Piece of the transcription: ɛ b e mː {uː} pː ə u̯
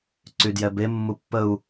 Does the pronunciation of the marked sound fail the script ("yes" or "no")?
yes